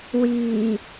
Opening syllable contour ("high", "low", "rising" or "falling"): low